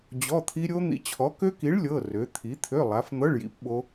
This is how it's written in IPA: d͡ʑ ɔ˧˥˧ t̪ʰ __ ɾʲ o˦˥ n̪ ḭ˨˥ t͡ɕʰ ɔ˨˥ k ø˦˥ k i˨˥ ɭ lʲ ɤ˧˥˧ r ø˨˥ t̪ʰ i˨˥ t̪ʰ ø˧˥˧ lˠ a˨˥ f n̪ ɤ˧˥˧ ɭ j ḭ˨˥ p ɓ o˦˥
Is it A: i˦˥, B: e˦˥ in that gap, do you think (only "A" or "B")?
A